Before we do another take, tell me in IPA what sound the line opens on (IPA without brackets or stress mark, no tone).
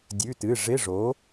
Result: dʲ